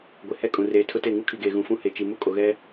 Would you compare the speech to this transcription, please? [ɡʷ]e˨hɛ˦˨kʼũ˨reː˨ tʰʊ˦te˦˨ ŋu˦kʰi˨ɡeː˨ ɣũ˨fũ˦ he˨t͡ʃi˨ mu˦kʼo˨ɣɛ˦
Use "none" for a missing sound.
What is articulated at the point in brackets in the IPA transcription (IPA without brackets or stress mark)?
ɡʷ